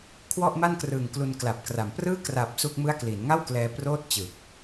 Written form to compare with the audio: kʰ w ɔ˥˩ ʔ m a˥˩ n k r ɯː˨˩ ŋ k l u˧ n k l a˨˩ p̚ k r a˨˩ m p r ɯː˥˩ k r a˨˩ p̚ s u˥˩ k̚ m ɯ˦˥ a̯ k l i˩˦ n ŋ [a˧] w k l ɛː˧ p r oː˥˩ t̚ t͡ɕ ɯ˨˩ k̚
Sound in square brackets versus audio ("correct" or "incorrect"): incorrect